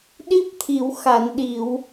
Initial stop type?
implosive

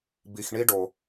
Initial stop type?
plain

